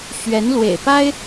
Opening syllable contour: rising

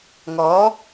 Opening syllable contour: rising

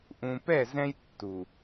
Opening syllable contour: low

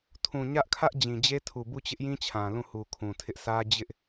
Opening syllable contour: low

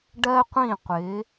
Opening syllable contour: high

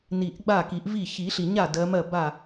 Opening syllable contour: low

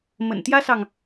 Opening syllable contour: low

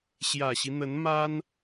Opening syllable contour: low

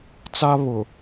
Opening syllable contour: high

